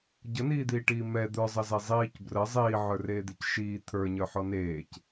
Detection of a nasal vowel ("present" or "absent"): absent